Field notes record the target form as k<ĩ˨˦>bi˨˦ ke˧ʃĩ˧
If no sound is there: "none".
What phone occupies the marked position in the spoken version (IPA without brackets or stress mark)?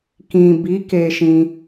ĩ˨